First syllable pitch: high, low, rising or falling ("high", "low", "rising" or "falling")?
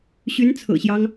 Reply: rising